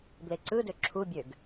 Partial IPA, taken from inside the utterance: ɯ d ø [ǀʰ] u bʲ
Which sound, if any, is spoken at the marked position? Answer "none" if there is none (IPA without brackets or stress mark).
ǁʰ